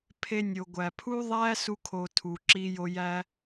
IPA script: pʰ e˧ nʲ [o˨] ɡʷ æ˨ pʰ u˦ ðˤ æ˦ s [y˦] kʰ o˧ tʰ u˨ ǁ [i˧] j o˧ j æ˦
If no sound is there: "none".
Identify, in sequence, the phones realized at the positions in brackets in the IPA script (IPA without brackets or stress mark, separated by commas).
o˨, u˦, i˧